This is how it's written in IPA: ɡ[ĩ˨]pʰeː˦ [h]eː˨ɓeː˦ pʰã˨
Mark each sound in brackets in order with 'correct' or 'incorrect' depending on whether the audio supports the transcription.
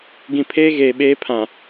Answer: correct, incorrect: ɣ

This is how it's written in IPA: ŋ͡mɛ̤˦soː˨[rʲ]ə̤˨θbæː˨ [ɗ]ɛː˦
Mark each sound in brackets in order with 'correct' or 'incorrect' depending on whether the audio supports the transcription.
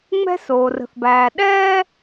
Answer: incorrect: r, correct

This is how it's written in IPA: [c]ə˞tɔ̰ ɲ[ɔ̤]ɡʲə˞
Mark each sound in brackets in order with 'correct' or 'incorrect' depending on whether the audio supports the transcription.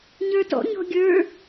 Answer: incorrect: ɲ, correct

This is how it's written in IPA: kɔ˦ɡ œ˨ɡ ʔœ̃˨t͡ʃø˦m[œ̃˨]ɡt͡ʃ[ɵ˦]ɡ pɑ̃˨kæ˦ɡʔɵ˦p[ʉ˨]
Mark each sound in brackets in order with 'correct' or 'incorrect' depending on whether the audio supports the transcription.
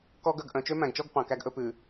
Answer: incorrect: æ̃˨, incorrect: ɔ˦, correct

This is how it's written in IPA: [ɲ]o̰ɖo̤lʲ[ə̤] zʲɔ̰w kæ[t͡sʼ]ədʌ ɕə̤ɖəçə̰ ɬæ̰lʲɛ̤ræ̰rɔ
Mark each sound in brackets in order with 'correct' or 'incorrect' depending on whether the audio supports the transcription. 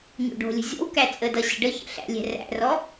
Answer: correct, correct, correct

